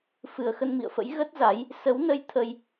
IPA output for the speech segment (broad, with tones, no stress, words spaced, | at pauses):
fɨ˨˩ə̯xə˧nmḭ˧˨ə̯fə̰˧˥j ɣə˦˥t̚za˨˦j | sə˨˦wnə˧j t̪ʰə˧j